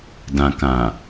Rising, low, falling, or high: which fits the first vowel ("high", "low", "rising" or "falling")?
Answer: low